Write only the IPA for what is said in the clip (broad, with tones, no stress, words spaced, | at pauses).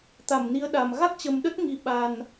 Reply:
t̪a˧˩mni˨˦ə̯ɗa˨˩m ɣa˦˥k̚t͡ɕə˨˩mɗə˦˥t̚ ŋi˨˦ ɓa˨˩n